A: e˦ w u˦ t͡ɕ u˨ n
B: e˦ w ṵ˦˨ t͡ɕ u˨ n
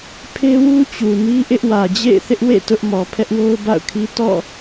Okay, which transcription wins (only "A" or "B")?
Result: A